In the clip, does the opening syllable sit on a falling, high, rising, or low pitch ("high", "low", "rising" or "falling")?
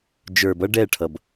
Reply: low